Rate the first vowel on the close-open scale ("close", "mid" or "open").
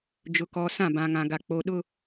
close